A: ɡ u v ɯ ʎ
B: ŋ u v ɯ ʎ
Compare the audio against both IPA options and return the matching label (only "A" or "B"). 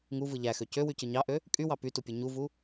B